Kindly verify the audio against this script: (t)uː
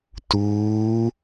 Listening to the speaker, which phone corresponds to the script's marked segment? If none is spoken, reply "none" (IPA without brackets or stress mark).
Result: t